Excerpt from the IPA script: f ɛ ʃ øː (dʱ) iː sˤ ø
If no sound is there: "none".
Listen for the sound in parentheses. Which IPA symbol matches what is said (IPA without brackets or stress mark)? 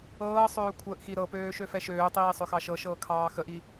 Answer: tˤ